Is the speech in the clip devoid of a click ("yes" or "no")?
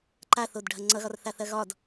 no